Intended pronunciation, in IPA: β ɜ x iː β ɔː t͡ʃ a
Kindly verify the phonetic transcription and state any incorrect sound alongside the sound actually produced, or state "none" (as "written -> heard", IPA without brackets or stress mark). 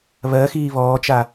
none